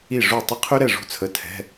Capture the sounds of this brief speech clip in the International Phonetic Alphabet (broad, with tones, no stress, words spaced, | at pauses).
i˥˨ʐu˥˨ tˤə˥qʰy˥ɾɛ˥˨ ʐṳ˥t͡sʰə˧˥˧ tʰɛ̤˧˥˧